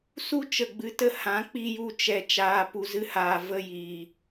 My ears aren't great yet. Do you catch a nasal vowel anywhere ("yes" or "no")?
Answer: yes